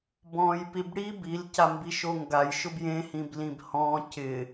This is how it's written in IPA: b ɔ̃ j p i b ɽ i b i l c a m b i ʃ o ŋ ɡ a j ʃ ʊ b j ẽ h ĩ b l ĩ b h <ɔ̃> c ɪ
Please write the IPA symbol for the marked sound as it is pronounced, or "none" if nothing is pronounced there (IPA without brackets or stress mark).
ɔ̃